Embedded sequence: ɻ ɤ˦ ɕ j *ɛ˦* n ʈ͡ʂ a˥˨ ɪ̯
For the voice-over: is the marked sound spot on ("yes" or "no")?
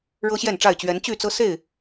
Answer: no